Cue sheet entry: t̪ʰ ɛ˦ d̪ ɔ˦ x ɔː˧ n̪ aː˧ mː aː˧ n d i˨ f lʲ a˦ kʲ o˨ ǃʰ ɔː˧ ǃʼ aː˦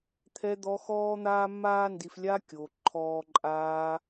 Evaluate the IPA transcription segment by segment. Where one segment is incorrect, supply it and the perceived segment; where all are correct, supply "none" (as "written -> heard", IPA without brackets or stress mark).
none